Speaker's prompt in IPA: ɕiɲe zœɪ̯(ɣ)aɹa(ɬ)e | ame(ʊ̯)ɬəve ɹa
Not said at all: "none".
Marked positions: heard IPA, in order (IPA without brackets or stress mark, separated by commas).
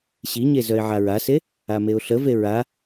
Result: ʕ, s, ʊ̯